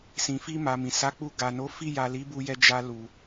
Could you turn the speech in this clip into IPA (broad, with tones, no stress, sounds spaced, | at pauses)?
s ĩ˨ f i˧ m a˨ m ĩ˨ s a˨˦ k͡p u˧ ɡ a˨ n o˨˦ f i˦˨ j a˨ l i˨˦ b u˧ j ɛ˧ d͡ʒ a˧ l u˨